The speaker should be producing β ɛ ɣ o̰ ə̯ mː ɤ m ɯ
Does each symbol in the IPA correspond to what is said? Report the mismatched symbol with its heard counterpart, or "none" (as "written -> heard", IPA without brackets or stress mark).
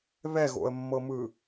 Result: none